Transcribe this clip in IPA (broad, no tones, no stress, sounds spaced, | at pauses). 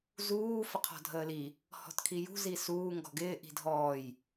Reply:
z uː f ə qʰ ɔ̤ dʱ əː l i | h ɔ̤ t kʰ i j ṳ z i s uː ŋ ɡ ɔ̤ ɡ ɪː ʔ i̤ dʱ ɔː j